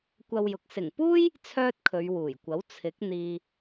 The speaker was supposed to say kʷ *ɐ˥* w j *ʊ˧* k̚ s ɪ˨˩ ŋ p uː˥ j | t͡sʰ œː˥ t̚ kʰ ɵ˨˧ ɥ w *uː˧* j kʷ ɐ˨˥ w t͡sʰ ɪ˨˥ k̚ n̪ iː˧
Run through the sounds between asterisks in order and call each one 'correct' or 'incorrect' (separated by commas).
incorrect, incorrect, incorrect